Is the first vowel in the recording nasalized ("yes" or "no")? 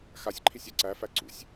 no